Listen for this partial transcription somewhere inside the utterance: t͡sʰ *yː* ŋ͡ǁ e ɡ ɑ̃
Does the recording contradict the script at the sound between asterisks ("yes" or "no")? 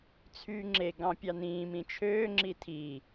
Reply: no